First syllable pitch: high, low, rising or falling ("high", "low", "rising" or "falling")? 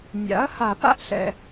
rising